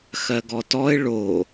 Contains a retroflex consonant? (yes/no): yes